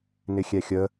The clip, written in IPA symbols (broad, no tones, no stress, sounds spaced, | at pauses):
n ɪ xʲ ɛ xʲ ə